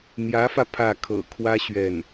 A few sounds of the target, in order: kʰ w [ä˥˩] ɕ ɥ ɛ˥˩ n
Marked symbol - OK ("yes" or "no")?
no